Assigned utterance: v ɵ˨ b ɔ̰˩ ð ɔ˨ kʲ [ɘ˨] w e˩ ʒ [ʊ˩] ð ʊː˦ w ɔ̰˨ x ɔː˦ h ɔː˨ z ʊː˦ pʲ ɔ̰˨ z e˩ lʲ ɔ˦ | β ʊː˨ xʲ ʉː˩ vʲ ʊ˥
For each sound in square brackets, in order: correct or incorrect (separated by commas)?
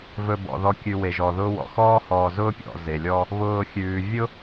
incorrect, incorrect